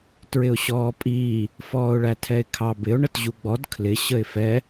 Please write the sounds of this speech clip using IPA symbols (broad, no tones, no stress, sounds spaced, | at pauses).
t ɹ ɪ ʊ̯ ɕ ɔː pʼ iː | f ɔː ʊ̯ ɭ æ tʰ ɛ ɪ̯ kʰ ɑ b ɪ ʊ̯ ɳ ə t ʑ u ɡ͡b ɔ d kʰ l ɪ ɕ ə ɪ̯ f ɛ